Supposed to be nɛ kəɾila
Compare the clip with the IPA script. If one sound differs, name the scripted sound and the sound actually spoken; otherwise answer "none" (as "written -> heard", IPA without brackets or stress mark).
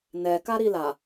ə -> a